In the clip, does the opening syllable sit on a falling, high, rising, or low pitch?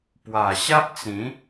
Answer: low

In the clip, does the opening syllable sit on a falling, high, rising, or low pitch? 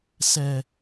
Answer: low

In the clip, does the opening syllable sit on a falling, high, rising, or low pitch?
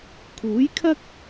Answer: rising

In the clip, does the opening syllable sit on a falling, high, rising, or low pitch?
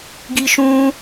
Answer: high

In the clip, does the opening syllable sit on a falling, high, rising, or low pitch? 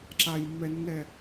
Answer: low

